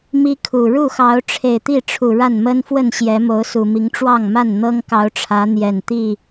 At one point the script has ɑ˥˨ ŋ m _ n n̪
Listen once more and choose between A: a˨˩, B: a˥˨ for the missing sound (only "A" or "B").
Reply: B